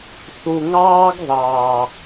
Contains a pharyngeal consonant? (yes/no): no